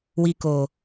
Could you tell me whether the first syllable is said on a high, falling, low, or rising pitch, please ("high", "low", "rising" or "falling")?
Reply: low